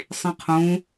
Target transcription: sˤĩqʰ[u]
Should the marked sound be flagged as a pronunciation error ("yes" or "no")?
yes